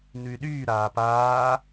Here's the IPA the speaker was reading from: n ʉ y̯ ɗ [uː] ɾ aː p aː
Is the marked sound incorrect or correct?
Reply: incorrect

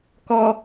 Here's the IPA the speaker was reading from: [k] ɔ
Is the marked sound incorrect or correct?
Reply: correct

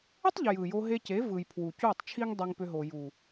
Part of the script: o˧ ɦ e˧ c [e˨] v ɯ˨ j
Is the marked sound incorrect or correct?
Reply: incorrect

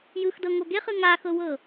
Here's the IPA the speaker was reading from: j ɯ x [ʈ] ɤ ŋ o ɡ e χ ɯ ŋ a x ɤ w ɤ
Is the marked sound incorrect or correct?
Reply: incorrect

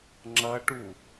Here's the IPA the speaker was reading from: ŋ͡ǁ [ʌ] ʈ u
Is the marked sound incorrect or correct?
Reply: correct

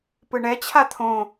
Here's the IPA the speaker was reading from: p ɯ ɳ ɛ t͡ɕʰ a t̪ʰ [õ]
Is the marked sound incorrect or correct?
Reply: correct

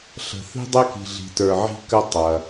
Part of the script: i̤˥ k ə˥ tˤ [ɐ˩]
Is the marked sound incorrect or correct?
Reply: correct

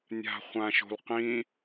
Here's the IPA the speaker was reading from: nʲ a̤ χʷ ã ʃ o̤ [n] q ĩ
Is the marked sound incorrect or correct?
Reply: incorrect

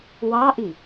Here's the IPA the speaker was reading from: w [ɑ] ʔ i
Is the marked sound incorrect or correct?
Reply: correct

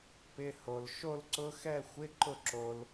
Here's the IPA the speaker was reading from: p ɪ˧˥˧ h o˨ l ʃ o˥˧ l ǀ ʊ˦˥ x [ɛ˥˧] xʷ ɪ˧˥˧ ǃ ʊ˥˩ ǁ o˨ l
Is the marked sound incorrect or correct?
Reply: correct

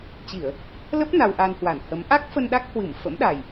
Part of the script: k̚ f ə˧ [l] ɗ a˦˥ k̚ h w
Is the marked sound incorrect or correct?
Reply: incorrect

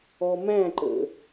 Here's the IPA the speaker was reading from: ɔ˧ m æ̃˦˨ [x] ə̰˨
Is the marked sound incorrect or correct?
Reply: incorrect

